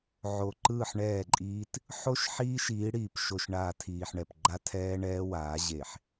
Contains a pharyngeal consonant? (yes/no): yes